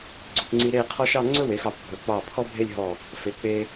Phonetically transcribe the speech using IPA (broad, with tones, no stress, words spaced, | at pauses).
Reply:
ɡ͡ǀɵ˩˧pŋ͡ǀi˧ ɾe˥˧qʰɔ˥ʃ ɑ˥˧ŋ͡ǀɵ˥we˩˧x ɑ˧˩p bʱɵ˩˧k͡pɑ˧˩ pʰɔ˥bʱe˥˧lʲɦɔ˧˩ | fe˩˧k͡pe˧